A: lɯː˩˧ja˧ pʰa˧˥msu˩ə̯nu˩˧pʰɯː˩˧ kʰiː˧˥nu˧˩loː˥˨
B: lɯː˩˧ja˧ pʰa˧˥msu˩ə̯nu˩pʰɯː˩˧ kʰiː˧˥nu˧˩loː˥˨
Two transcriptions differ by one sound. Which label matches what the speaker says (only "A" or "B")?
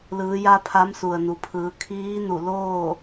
B